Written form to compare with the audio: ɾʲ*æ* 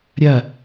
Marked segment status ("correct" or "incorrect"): incorrect